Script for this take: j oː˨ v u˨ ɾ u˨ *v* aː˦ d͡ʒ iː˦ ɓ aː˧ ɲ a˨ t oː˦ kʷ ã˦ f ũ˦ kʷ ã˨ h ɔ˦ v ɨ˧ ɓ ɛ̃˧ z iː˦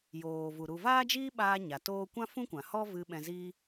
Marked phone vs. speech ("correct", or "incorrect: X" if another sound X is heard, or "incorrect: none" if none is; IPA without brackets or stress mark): correct